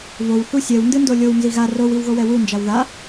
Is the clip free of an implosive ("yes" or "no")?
yes